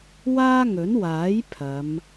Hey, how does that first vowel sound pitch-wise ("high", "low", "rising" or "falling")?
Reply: high